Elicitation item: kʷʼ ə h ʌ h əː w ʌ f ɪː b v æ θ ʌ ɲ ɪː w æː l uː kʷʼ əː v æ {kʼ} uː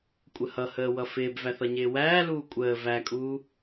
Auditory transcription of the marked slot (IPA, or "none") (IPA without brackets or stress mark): kʼ